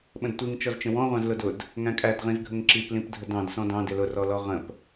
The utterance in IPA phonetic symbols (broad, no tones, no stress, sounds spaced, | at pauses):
ɓ ə̃ d tʷ i ŋ t͡ʃ ɔ z t͡ʃ ə̃ w ɔ̃ ʁʷ ɑ̃ z l ʊ d ʊ d | ŋ æ̃ kʼ æ d ʁ ĩ z ɡʱ ə ŋ ǁ i p l ĩ p dʱ ə d ɑ̃ d s ɔ̃ d ɑ̃ d ɪ l ʊ r ɔ l ɔ ʁ ə̃ p